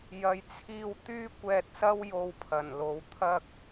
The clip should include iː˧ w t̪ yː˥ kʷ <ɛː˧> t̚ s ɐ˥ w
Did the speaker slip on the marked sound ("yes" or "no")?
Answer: no